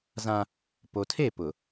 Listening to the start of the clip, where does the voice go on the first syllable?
high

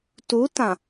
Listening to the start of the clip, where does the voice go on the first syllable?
rising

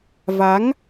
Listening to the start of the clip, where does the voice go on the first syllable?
rising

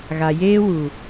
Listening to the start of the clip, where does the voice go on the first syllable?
low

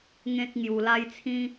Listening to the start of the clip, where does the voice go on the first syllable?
high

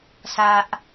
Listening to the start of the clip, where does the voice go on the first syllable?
low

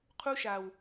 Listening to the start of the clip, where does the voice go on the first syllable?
high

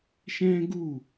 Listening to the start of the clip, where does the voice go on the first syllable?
high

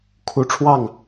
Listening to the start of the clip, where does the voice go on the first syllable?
high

